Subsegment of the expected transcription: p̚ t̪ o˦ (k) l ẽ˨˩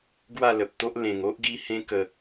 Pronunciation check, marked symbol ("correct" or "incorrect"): incorrect